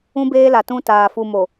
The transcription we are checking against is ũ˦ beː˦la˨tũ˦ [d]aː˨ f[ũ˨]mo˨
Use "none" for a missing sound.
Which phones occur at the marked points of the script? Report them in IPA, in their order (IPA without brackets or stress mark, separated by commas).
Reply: t, u˨